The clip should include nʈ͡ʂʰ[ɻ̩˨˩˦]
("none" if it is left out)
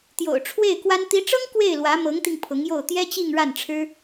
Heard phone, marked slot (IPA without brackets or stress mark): ɻ̩˥